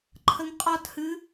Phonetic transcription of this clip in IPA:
ǃʰ ə ŋ qʼ ɒ t h ɨ

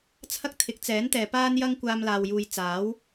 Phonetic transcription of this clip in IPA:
t͡sʰ ɐ˥ k̚ t̪ʰ ɪ˨˥ k̚ t͡s ɛː˨˥ n t̪ ɛː˨ p aː˥ n j ɐ˥ ŋ kʷ aː˧ m l aː˨ w j uː˨ j t͡s aː˨˥ w

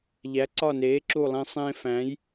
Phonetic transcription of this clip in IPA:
ʎ æ˨˥ ǀ ɒ˦˨ n eː˨˥ ǁ u˦˨ lˠ ẽ˦ sˤ ẽː˦ f æ̃˨˥ j

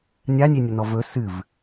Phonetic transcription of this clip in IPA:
nʲ a nʲ e nʲ ɵ n ɔ v ɵ s ɨ v

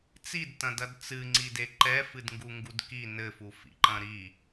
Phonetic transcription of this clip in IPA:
t͡s i d t ɐ̃ d ɐ d t͡s ɨ ŋ͡ǀ i d e ǃ ɛ f ɨ d ŋ ɡ u ŋ ɡ u d k i n ɘ f u f ḭ ǃ ɐ̃ ɾ i

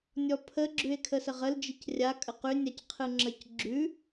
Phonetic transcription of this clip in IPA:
nʲ ɔ pʰ ə ɡ͡ǁ ʉ e̯ kʰ ə s ə ʁ ə l d͡ʒ i c rʲ a kʼ ə q ʉ nʲ a c qʰ ɯ ŋ͡ǁ ə c ɡ͡ǁ ʉ

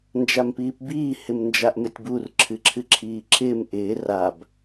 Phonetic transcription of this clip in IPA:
n d͡ʒ a m p iː p b iː h ɪ m n d͡ʒ a ʔ m ɪ tʲ b u r ǁʰ ɨ ǁʰ ɨ ǁʰ iː ǁʰ ɪː m ʔ ɪː r a b

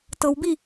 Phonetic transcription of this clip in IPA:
t ɤ w b i

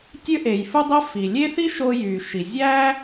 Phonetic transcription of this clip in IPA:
tʲ ø˥ ʔ e˩ j f u˥ dˤ e˥ f i˩ lʲ e˥ θ i˥ ʃ o˧ j y˩ ʃ i˩ zʲ æ˥

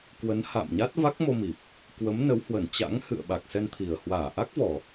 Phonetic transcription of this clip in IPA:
k w ə˨˦ n h a̰ː˧˨ m ɲ a˦˥ t̚ v a˦˥ k̚ m o˧ m i˨˩ p̚ | k w ə˨˦ m n ə˨˦ w h w ə˧˩ n t͡ɕ a̰˧˥ ŋ h ɨ̰˧˨ ə̯ ɓ a˨˩ k̚ s ɛ˧ n t̪ʰ i˨˩ ə̯ h w aː˧˩ ʔ a˦˥ k̚ v ɔ˨˩

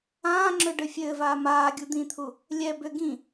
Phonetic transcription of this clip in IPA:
ãː ŋ͡ǁ ø ɖ ɘ fʲ ɘː v aː m aː ɡʲ u d̪ ĩ t̪ʰ u | lʲ ɛ b ʏ ɡ ĩ

